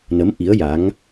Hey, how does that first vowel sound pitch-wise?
rising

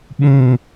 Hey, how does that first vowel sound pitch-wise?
low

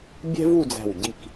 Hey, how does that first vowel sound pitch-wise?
high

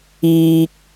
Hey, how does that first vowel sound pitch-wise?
low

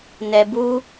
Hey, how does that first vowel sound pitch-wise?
low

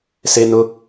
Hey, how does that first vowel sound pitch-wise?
low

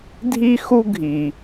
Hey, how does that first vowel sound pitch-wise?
high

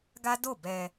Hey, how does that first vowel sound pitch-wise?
high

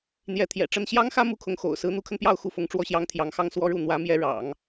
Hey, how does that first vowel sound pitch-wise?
rising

